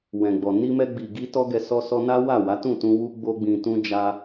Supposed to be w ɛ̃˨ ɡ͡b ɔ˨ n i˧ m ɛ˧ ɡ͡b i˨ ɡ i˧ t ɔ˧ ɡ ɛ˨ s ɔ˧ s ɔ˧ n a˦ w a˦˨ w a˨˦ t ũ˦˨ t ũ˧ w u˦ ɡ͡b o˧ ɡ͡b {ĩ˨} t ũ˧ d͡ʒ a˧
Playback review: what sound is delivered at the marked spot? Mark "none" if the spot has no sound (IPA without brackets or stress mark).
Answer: ĩ˨